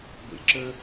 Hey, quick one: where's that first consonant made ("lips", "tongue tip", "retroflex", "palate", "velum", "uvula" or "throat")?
lips